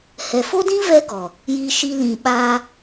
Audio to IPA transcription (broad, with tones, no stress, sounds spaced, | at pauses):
h ɛ˨ f o˦ d ĩ˦ v ɛ˦ ɡ ɔ˨ | j iː˧ ʃ i˧ l ĩ˨ ɓ aː˧